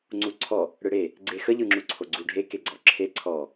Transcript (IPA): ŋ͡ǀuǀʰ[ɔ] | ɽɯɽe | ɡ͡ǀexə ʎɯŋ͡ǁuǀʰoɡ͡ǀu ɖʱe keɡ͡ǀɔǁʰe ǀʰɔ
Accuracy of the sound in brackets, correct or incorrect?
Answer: correct